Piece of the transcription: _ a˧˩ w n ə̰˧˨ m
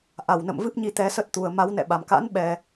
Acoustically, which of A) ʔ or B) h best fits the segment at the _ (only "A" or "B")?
A